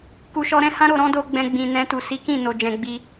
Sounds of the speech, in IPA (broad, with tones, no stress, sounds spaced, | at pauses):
k u˨ ʃ ɔ˧ ɾ ɛ̃˦ h ã˦ ɾ o˧ ɾ ɔ̃˦ d o˧ ɡ͡b ɛ̃˧ ɡ͡b ĩ˨ n ɛ̃˧ t u˨ s i˨˦ k ĩ˦˨ n o˨ d͡ʒ ɛ̃˨ ɡ͡b i˧